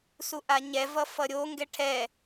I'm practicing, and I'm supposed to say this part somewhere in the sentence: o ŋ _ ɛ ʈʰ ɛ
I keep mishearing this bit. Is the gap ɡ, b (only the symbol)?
ɡ